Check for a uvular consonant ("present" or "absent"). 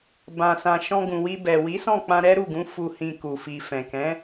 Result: absent